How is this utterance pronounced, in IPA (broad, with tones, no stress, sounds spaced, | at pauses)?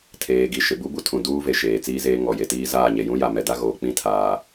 tʰ eː˨ ɡ i˨ ʃ ɪ˨ b u˦ b u˦ tʰ ũ˨ d uː˦ v e˨ ʃ eː˨ t͡s iː˦ z eː˦ ŋ ɔ˨ j e˨ t iː˦ z aː˦˨ ɲ e˨ j ũ˦ j a˨ m ɛ˨ d a˦ ɣ oː˨ k͡p ĩ˦ tʰ aː˨